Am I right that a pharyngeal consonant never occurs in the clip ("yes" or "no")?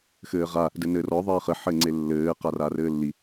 no